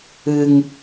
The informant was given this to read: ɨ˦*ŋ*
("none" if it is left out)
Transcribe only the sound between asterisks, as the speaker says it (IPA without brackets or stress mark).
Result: ŋ